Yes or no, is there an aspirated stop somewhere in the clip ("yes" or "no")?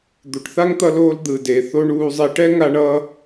no